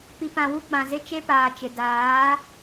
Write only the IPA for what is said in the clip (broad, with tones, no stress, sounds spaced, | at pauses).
p i˨ p ã˨ w u˦ ɡ͡b ã˨ z ɪ˦ t͡ʃ e˦ p aː˨ t͡ʃ ɪ˨ d aː˨˦